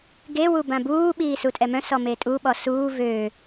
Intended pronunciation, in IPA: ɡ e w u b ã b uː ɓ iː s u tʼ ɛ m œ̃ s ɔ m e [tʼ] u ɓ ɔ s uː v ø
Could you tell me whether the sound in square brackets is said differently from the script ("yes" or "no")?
no